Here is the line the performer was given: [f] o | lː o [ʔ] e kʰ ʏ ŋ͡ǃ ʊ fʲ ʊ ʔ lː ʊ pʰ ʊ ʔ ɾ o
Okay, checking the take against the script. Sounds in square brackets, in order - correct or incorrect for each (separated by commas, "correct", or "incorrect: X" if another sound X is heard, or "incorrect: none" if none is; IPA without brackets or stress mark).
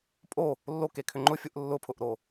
incorrect: pʼ, incorrect: k